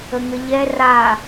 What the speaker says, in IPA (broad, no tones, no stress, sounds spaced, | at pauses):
ə ŋ ə ʎ ɛ r a